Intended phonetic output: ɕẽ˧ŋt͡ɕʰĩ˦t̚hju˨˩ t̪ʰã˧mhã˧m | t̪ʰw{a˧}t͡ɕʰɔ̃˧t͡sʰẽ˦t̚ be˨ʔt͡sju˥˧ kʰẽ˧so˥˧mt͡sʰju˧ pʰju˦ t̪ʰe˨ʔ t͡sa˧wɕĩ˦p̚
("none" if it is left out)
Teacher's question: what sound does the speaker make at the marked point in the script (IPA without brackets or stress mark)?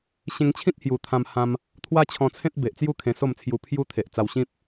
a˦